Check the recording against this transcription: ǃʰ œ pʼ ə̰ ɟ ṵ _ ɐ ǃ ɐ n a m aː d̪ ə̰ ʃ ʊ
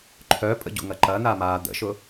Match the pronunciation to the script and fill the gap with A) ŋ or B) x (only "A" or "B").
A